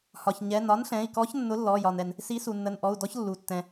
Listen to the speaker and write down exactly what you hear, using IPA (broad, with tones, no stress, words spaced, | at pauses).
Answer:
hɒ˩çɲɛ˩˧˩n ɒ˨˥nɬɛ̃˩˧˩i̯kɔ˨˥ç nːʊ˨˥ lːɔ˩˧˩jɒ˩nɛ˩n | si˨˥su˩nːə˩˧˩nʔɔ˩˧˩u̯ dɔ˨˥çlːu˩ tːɛ̃˩